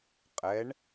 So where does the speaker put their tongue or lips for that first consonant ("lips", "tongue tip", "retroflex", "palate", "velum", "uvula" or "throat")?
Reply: uvula